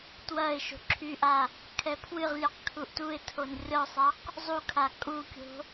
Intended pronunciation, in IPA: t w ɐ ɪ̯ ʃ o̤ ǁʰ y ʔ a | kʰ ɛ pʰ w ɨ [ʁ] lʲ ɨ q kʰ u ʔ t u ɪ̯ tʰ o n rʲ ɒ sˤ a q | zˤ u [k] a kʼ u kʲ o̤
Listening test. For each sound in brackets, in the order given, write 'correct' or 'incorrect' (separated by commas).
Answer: correct, incorrect